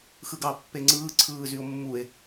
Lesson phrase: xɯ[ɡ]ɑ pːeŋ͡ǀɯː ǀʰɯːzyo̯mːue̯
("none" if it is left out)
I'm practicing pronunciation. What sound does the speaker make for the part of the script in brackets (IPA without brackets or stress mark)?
ɡ